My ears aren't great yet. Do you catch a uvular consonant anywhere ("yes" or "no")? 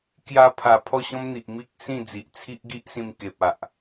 no